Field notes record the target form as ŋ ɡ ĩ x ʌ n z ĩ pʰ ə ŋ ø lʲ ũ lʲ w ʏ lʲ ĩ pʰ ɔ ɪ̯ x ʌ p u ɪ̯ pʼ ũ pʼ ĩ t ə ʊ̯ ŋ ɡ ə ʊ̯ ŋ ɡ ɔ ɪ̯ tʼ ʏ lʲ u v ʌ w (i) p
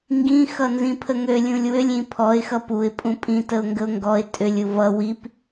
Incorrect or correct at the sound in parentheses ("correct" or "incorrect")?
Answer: correct